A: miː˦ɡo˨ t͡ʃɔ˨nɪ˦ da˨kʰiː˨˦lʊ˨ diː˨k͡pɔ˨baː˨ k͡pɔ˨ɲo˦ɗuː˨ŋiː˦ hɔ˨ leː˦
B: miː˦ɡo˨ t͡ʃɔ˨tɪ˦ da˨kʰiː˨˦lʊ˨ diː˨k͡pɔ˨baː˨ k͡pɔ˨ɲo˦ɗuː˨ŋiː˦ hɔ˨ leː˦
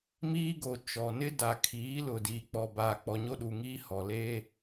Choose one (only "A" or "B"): A